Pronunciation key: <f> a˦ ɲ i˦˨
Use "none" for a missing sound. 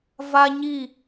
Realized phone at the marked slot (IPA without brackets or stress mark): v